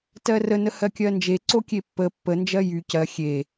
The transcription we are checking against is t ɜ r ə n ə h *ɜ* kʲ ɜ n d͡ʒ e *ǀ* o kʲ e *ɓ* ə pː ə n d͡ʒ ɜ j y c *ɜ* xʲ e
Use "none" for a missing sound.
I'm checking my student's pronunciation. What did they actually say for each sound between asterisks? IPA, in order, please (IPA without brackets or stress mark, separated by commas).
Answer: ɜ, ǀ, pː, ɜ